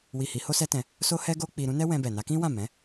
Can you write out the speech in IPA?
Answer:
w i˨ h i˨˦ h o˦ s ɛ˦ t ɛ̃˧ | s o˦ h ɛ˦ ɡ o˦ k͡p i˧ ɾ ũ˦ n ɛ˦ w ɛ̃˧ b ɛ˨ n a˨˦ k ĩ˦ w ã˦˨ m ɛ̃˨˦

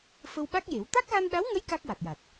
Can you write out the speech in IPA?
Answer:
f ə˧ w ɓ a˦˥ k̚ j e˨˩˦ w t̪ a˦˥ k̚ ɣ a˧ n ɗ a˧˥ w ŋ ə˧˥ j k a˦˥ k̚ w a˨˩ t̚ j a˨˩ t̚

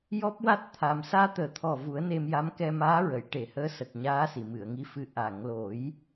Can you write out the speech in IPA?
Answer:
j ɔ˦˥ p̚ w a˦˥ t̚ t̪ʰ a˧ m s aː˧ t̪ əː˨˩ t̪ʰ ɔ˨˩ v u˨˩˦ ə̯ n e˧ m j a˧˥ m k ɛ˧ m aː˧˥ ɹ ə˨˩˨ j ʈ e˨˩˨ h əː˧˥ s ə˨˩ k̚ ɲ aː˧˥ s i˨˩˨ m ɨ˨˩˨ ə̯ ŋ i˧˥ f ɨ˧ ʔ a˨˩˨ ŋ l o˨˩˦ j

